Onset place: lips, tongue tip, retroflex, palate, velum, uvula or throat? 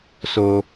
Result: tongue tip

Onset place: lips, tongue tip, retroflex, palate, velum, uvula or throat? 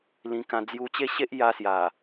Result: tongue tip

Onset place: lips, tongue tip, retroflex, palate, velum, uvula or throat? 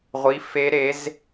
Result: uvula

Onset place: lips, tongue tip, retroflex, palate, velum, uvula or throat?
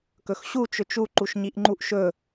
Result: velum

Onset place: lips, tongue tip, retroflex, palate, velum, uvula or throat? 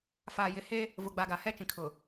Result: lips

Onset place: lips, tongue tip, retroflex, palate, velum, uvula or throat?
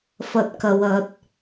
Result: lips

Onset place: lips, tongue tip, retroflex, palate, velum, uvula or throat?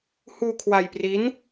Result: throat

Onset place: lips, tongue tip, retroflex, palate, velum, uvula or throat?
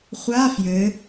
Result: uvula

